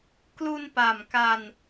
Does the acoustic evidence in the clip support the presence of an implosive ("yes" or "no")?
no